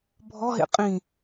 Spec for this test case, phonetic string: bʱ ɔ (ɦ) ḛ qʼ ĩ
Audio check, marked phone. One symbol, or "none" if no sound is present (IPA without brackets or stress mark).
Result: ɦ